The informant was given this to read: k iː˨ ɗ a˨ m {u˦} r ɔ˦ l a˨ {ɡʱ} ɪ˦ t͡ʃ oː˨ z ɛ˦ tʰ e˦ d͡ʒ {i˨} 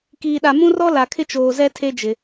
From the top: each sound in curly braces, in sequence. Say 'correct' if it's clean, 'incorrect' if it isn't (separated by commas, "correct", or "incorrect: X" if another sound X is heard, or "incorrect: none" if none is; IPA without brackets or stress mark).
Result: incorrect: ũ˦, incorrect: kʰ, incorrect: ɪ˨